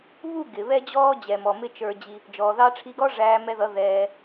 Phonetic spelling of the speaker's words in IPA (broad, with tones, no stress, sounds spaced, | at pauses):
β u˦˨ ɡ ɪ˨ β ɛ˦ d͡ʑ ɔː˦ d͡ʑ ɛ˨ m ɔ˨ m ɪ˦ t͡ʃ ə˞˧ d͡ʑ i˧ | d͡ʒ ɔː˨ ð ɑ˧ ʈ͡ʂʰ i˧ ɡ ɔ˦ ʐ æː˧ m ɛ˧ ð ʌ˨˦ ð ɛː˧